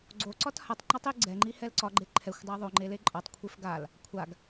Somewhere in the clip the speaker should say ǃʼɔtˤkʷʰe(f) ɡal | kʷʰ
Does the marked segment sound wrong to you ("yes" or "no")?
no